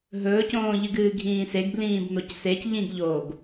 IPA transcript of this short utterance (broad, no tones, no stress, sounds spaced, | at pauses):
ɦ ɵː c õː ʎ ɨ ɡ ɨː ɡʱ ĩː s e ɡ b l ĩː b n o c s e c ʎ ĩ ɡ ʎ oː ɡ